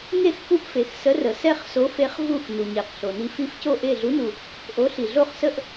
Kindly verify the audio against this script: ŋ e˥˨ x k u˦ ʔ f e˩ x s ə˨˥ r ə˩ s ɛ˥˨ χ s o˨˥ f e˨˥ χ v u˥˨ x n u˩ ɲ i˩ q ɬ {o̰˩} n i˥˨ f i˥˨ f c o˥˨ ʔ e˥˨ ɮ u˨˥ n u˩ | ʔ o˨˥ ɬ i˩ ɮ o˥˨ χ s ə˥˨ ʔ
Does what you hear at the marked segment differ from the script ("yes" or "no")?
yes